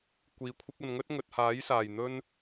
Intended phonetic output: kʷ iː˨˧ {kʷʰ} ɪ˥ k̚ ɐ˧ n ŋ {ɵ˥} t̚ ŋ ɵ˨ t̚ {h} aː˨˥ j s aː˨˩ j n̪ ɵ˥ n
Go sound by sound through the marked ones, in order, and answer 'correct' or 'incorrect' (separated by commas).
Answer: correct, correct, correct